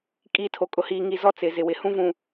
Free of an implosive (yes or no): yes